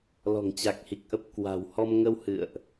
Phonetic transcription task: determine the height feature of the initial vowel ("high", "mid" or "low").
mid